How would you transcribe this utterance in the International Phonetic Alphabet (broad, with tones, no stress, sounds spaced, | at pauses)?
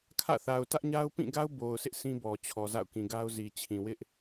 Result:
kʰ ä̰˦˨ θ a˨ ʊ̯ t ä˦ ʔ ɲ a˦ ʊ̯ p ĩ˦˨ ɡ a˦ ʊ̯ b o˨ ʊ̯ s ɪ˦ ʔ sʰ ĩ˦ b ɔ˨ t͡ɕʰ ɔ˨ z a̰˦˨ ʊ̯ k ĩ˨ ɡ a˦ ʊ̯ z i˨ t͡ɕʰ ĩ˨ w ɪ˦ ʔ